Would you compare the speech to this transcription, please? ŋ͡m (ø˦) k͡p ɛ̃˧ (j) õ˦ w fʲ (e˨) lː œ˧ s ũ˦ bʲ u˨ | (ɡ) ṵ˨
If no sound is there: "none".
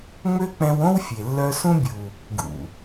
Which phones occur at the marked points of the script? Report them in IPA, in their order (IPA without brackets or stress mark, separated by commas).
ø˦, w, e˨, ɡ